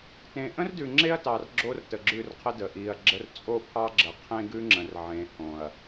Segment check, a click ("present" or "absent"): present